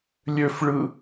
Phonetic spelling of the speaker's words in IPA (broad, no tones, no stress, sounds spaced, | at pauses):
lʲ ø f ɭ ɯ